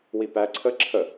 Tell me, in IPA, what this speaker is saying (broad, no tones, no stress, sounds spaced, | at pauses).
w i p æ ǀʰ ə ǁʰ ə